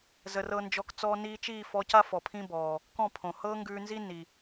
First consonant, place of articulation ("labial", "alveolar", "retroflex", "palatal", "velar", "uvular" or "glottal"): alveolar